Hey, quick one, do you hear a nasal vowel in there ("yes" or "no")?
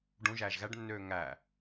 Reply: yes